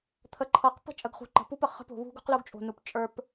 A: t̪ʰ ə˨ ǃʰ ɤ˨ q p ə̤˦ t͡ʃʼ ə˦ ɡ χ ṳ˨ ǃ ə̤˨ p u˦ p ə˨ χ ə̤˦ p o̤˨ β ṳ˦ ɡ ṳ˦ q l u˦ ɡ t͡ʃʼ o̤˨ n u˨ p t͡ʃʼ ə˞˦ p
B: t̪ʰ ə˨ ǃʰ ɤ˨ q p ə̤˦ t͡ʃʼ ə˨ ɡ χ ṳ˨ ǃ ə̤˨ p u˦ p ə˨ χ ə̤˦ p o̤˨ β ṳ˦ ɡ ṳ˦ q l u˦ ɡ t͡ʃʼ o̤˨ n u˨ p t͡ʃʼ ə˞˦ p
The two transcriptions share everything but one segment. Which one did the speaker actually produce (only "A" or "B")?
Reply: B